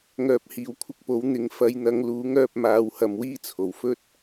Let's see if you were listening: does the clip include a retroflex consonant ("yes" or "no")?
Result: no